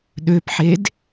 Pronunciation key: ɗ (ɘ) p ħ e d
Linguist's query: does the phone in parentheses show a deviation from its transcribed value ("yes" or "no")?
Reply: yes